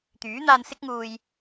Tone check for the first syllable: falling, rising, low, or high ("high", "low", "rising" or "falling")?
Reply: rising